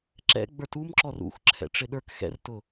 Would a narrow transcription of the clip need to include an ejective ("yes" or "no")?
no